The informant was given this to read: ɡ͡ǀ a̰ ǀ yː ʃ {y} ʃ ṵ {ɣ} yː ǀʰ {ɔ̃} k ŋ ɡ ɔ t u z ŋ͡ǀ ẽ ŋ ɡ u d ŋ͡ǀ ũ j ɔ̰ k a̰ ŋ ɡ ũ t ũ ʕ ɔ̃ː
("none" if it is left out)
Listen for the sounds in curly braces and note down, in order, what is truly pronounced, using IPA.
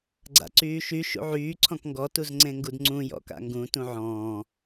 y, ʕ, ɔ̃

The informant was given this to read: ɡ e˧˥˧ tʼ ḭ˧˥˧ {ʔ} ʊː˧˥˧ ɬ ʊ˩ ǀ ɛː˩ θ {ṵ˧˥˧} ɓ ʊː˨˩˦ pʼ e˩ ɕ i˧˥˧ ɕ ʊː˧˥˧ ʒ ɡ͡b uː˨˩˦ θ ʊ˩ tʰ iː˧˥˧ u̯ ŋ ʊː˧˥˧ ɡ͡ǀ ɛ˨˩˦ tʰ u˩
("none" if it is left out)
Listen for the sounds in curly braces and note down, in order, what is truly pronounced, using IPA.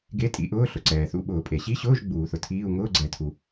ʔ, ṵ˧˥˧

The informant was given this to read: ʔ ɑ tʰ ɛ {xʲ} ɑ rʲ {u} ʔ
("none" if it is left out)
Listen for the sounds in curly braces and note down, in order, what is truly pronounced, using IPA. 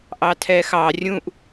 x, ũ

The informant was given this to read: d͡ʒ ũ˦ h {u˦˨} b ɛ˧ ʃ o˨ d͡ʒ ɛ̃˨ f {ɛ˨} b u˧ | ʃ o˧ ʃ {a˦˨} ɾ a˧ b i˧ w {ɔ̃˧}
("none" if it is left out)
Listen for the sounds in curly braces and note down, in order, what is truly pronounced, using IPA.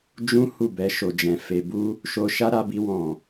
u˦˨, e˨, a˦, ɔ̃˨

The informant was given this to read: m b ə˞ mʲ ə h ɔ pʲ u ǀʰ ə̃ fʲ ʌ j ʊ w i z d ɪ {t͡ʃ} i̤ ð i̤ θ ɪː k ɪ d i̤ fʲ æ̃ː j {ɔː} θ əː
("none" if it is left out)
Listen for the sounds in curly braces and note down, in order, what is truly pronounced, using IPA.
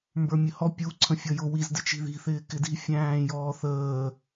t͡ʃ, ɔː

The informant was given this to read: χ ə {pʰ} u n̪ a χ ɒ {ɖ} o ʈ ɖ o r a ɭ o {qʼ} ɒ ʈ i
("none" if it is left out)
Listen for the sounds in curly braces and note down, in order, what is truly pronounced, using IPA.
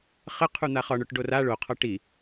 qʰ, ɳ, qʰ

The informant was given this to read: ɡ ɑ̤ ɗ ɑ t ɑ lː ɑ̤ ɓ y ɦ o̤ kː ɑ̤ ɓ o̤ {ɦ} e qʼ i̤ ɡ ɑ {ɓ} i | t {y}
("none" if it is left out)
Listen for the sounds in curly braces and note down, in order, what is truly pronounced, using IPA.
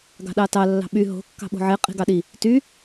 ʕ, ɗ, y

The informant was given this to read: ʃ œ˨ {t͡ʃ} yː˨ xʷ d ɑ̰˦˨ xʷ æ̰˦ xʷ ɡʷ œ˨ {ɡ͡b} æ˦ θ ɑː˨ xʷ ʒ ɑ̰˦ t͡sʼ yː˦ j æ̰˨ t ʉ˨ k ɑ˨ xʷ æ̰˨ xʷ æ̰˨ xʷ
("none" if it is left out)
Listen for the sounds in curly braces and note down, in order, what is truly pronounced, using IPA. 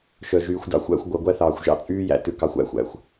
ʒ, ɡʷ

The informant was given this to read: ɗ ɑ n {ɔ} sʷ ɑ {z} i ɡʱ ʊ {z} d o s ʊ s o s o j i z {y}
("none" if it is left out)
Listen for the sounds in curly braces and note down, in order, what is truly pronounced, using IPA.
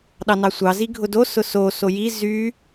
ɑ, z, none, y

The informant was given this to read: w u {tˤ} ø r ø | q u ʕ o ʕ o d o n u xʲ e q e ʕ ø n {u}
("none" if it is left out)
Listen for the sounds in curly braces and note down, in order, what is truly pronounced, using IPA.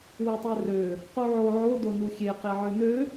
tˤ, ø

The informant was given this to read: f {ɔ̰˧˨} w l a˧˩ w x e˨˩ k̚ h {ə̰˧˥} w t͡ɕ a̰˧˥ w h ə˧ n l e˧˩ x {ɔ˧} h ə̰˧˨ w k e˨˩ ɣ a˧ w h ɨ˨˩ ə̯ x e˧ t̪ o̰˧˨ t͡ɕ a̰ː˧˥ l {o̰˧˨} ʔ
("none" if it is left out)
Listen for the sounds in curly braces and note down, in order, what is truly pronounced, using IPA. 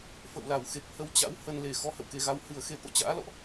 ə̰˧˨, ə˧, ɔ˧, ɔ̰˧˨

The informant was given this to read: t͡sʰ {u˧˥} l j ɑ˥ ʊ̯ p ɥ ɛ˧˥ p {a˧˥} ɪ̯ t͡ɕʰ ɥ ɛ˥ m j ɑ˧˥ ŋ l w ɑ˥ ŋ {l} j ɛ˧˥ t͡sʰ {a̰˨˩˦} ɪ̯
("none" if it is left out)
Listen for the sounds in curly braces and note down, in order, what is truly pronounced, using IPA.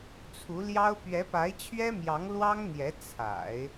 u˧˥, a˧˥, n̪, a̰˨˩˦

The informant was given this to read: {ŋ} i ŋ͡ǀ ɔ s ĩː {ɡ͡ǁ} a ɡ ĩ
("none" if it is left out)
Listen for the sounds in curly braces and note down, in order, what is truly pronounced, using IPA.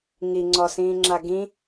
ŋ, ŋ͡ǁ

